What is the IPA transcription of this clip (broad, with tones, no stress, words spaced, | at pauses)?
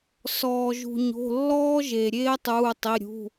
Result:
sɔː˩ʒṳ˩ɲo̤˩˧˩ lːɔː˦˥ʒe˩ ɾʲeː˦˥tˤuː˩˧˩tˤi˩˧˩ ɾʲṳ˩˧˩